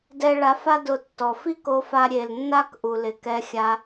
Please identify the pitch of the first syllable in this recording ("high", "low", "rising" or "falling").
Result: high